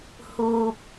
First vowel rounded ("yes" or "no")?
yes